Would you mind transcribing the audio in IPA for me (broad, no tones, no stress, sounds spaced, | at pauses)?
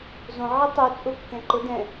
z õ ʕ i tˤ u t͡sʼ ʊ kː ɛ̃ ǃ ʊ d ɛ̃